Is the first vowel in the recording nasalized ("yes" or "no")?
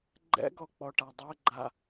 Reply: no